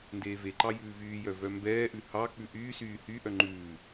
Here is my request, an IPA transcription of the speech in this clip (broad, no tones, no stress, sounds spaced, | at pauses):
n d eː v e ǃ ɑ j ʉː v yː j œ v œ m b ɛː ʔ ʉ h ɑ k͡p ʉ ʔ yː s yː h y ʔ œ ŋ͡ǃ ʉː